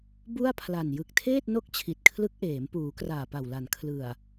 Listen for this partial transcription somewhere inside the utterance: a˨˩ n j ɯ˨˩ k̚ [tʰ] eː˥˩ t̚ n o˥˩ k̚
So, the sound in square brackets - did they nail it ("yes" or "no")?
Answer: yes